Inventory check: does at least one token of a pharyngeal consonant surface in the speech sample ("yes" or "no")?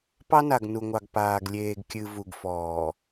no